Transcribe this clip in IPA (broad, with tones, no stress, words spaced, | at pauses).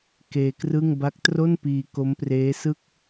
keː˧krɯ˥˩ŋ ba˦˥k̚tro˥˩npiː˧ ko˦˥mpreː˦˥sɯ˥˩k̚